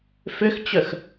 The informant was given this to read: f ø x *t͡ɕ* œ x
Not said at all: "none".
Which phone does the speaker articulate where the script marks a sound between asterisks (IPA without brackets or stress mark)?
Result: t͡ɕ